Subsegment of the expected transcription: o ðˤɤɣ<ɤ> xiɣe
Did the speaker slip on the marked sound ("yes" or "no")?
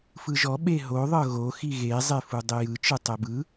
yes